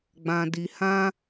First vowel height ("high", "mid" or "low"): low